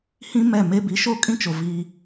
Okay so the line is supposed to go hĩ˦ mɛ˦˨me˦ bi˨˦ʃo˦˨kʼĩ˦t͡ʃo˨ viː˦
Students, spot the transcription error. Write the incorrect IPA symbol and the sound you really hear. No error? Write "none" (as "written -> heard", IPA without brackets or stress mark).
none